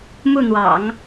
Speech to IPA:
m u˥˩ n̪ w ɑ̰˨˩˦ ŋ

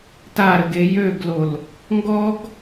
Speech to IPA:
t a ɾ ə ɡ e j ø ɡ l o l | ŋ ɡ ɔ ɡ

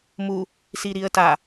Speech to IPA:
m u | s i ɾ i ə̯ t a

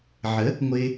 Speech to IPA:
ʕ ə˨˦ | ŋʷ ɪː˧

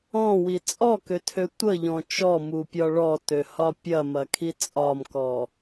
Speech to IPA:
ɔ̃ w i t͡sʼ ɔ k ø tʰ ø tʷ ə ʎ ɔ̃ t͡ʃ ɔ m u pʲ ɒ ɭ ɔ t ø h ɒ pʲ ɐ m ɐ kʰ i t͡sʼ ɒ m k ɔ

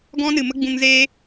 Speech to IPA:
ɡ ɔ̃˦ n ɨ˨ m ə˦ ɡ͡b ũ˧ ŋ z eː˦

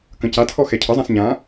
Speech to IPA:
k ə̃ c a tʰ ɔ x ɛ cʰ ə zˤ ã s ɲ ã

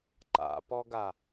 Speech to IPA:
ǃ a̰ p ɔ ɡ a

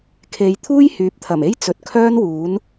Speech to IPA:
kʰ e˨ j t̪ʰ uː˥ j h yː˨˥ p̚ t̪ʰ ɐ˨˩ m e˥ j t͡s ɵ˨ t̚ kʰ œː˥ n w uː˨˥ n

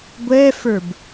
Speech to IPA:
ɡʷ ɛ f ə˞ b

